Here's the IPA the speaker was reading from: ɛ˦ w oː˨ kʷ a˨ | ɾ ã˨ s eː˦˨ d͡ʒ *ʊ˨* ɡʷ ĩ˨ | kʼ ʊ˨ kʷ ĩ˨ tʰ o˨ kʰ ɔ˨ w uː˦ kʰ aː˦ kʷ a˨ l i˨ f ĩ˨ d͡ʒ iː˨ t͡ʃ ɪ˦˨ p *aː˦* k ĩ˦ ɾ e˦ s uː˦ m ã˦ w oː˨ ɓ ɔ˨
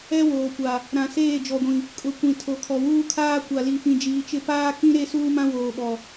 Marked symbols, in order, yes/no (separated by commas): no, yes